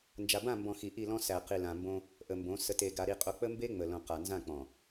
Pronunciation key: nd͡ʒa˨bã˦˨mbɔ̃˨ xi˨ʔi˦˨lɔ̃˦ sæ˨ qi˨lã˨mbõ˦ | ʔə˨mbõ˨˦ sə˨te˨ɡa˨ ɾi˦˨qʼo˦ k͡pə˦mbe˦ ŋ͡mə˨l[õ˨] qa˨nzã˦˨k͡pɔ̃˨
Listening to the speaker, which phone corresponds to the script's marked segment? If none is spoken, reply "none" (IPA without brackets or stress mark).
õ˨